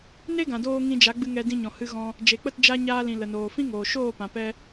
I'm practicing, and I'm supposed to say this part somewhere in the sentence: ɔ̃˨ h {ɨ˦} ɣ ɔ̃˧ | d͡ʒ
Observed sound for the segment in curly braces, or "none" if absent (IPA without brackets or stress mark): ɨ˧